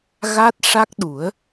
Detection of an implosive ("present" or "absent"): present